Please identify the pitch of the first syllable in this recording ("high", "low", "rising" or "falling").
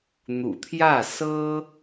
low